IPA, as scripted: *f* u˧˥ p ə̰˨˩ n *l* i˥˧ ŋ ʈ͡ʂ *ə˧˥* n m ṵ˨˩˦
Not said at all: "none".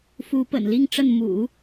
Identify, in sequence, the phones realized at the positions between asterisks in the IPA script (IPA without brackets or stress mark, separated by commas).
f, l, ə˥˩